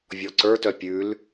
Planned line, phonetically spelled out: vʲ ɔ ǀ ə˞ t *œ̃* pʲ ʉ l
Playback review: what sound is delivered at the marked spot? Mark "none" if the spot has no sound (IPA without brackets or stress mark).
œ